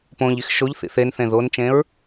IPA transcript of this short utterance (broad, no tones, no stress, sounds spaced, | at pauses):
p õ ʎ i x ʃ o ʎ θ ḭ θ e n θ ẽ ð o n t͡ʃ ẽ ɹ